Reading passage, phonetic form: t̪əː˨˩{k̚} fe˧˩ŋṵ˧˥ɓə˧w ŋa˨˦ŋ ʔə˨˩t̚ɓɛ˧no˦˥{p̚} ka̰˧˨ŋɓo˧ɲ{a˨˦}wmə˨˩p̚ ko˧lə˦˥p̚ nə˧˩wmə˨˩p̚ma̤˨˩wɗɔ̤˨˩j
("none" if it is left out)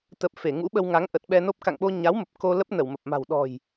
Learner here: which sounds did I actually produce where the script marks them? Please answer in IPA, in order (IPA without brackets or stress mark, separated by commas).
p̚, p̚, a˨˦